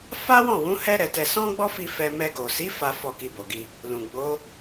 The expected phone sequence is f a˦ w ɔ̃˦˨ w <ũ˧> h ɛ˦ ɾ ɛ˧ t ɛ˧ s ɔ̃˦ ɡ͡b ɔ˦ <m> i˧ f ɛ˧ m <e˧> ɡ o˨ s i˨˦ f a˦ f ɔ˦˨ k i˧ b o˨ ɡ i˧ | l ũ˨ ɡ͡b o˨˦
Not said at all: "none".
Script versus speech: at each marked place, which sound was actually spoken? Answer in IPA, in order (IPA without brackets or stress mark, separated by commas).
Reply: ũ˨˦, f, ɛ˧